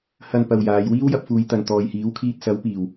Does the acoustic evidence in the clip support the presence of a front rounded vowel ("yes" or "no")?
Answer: no